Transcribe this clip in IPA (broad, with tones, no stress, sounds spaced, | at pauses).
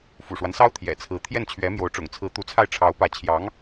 f ṵ˨˩ ʂ w a˦ n s ɑ˥ ʊ̯ t̪ʰ j ɛ̰˨˩ t͡sʰ ɹ̩˧˥ t̪ʰ j ɛ˥˩ n t͡ɕʰ ɥ ɛ˧˥ m j o˧˥ ʊ̯ ʈ͡ʂ ʊ̰˨˩ ŋ t͡sʰ ɹ̩˧˥ t̪ u˧˥ t͡sʰ a˥˩ ɪ̯ ʈ͡ʂʰ ɑ˧˥ ʊ̯ p ä˧˥ t͡ɕʰ j ɑ˧˥ ŋ